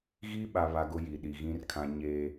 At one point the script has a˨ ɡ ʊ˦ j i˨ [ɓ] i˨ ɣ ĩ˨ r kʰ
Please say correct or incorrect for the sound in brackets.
incorrect